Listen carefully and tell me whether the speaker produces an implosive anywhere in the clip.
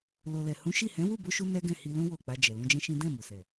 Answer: no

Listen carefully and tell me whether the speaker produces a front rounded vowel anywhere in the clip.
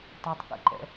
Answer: no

